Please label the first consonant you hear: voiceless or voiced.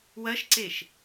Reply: voiced